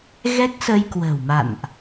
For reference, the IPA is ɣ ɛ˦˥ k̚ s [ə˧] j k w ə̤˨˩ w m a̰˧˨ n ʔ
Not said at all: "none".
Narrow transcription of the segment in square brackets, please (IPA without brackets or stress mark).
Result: ə˧